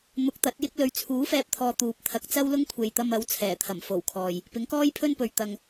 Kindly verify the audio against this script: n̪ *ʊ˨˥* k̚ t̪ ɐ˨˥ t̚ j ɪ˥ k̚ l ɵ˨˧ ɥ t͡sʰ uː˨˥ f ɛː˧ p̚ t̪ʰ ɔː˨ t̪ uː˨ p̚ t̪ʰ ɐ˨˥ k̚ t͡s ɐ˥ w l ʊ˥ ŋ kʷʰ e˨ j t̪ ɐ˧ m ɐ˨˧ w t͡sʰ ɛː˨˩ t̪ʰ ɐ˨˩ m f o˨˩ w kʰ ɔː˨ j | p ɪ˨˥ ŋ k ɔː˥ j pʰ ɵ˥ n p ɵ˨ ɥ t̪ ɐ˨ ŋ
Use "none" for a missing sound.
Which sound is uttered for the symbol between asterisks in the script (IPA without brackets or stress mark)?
ʊ˨˥